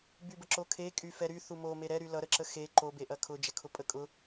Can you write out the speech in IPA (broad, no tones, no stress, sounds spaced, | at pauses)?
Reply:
b y b ə ǁ o kʰ e kʼ y f ɛ ɾ y θ u m o m e ɾ ɛ ɾ y l ʌ ɾ ə ǁ ə x e ǃ o b e ʔ ɐ kʰ ʊ d͡ʒ ɐ kʰ ʊ pʼ ə kʼ ʊ